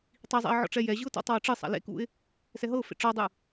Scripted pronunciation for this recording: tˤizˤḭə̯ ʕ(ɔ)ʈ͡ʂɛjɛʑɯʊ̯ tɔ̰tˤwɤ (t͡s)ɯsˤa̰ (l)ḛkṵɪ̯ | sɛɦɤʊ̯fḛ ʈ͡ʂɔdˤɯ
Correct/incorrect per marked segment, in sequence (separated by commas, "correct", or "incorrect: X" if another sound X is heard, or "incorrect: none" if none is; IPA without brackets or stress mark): incorrect: ɔ̰, incorrect: ʈ͡ʂ, correct